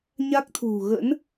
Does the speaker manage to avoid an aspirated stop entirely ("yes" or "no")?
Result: no